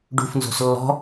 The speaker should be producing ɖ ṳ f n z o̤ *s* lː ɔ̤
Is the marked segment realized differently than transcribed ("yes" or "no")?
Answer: no